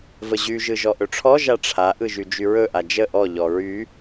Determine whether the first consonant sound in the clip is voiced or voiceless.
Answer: voiced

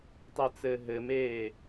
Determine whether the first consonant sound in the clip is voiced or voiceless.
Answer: voiceless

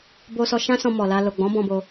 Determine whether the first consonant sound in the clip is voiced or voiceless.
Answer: voiced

